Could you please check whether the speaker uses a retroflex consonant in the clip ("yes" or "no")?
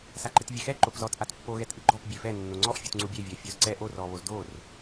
no